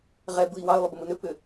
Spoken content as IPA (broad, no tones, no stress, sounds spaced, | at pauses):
ʁ ɛ b ɯ i̯ w ɑ y̯ lˠ ʏ b ə m ɯ n ʏ p ʏ